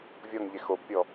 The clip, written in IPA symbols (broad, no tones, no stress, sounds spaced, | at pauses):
vʲ ɔ ŋ ʎ e x o b pʲ ɔ